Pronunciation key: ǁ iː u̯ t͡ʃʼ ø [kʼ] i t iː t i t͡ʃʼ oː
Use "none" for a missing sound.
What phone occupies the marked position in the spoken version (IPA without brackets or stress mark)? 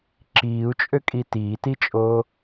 kʼ